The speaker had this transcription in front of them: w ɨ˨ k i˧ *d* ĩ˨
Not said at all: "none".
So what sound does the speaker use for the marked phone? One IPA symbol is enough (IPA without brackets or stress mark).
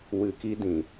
d